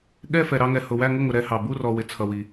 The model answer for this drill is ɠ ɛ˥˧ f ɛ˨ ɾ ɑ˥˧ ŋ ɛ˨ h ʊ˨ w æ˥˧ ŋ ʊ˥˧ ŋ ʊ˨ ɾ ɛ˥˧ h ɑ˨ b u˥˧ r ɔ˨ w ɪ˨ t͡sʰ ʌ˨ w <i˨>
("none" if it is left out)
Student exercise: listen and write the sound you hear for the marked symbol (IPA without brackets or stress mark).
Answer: i˨